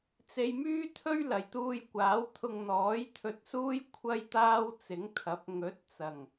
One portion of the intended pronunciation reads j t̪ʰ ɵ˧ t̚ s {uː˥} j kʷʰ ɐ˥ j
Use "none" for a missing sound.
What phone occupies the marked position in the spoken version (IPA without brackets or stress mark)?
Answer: uː˥